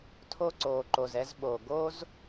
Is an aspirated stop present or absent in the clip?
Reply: present